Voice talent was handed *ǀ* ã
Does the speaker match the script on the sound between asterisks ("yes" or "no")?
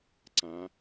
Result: yes